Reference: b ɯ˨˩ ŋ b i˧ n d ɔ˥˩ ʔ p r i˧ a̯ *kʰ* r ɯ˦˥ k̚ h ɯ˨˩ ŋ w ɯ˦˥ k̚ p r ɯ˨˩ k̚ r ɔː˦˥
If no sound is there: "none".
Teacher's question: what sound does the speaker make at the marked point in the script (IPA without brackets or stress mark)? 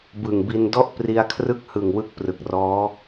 kʰ